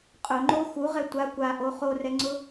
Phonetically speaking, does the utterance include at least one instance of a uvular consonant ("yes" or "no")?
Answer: yes